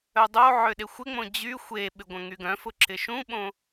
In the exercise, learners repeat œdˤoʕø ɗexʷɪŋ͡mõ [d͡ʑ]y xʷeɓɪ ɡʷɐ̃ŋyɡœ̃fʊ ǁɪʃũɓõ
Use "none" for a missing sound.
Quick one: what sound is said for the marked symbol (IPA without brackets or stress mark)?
d͡ʑ